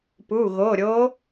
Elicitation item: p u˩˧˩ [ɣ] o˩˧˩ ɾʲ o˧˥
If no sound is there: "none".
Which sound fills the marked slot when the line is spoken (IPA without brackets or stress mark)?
ɣ